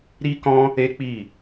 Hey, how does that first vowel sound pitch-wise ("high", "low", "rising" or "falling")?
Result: high